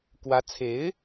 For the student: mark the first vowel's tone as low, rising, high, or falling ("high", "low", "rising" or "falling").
rising